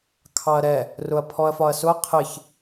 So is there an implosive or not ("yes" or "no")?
no